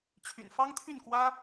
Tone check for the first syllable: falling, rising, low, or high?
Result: low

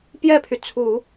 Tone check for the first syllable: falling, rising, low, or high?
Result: falling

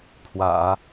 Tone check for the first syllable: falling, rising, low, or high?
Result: low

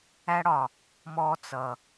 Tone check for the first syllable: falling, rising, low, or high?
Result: high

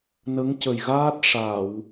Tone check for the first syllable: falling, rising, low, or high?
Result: rising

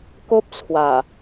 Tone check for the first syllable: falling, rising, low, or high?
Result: high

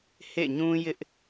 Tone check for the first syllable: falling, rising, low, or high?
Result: falling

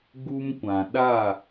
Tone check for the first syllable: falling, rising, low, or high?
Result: high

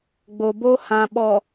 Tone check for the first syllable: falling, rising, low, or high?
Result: low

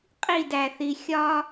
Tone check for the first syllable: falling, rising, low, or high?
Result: falling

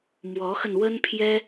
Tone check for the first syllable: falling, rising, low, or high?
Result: rising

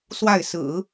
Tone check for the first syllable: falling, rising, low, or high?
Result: falling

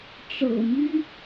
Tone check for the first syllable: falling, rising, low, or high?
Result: low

